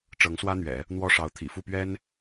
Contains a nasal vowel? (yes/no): no